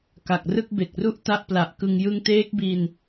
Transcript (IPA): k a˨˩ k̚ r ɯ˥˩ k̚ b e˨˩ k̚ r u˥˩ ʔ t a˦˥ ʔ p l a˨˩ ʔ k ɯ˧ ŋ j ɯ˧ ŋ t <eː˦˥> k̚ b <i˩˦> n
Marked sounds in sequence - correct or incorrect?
correct, incorrect: i˧

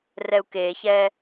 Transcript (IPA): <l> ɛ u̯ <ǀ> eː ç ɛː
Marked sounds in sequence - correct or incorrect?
incorrect: r, incorrect: k

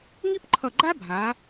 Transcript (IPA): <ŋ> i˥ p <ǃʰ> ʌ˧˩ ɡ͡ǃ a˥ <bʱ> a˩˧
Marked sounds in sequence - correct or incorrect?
correct, correct, correct

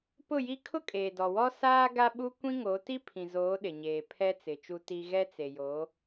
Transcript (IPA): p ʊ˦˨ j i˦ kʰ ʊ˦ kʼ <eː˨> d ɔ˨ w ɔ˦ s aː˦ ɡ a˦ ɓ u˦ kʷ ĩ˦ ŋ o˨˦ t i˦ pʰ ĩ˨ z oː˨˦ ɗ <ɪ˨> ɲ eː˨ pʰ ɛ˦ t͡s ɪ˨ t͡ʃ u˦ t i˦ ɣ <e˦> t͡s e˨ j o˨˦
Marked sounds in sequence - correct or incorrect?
correct, correct, incorrect: ɛ˦

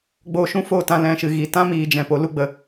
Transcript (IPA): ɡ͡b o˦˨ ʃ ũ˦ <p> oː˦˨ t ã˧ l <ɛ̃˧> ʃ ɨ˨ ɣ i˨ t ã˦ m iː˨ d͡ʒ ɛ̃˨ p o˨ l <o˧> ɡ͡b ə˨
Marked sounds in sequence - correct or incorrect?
incorrect: f, correct, incorrect: u˧

